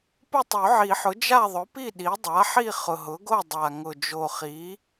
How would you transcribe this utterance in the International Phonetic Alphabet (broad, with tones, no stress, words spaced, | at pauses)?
pʊ˥˨tˤo˨˩˦ʕi˨˩˦ħʊ˩˥ d͡ʒa˥˨ðˤʊ˩˥pi˥˨ ɗi˩˥ dˤa˩˥ħi˥˨ χʊ˨˩ɦʊ˩˥ɡo˥˨ dˤa˨˩ŋʊ˨˩ d͡ʒo˨˩χi˩˥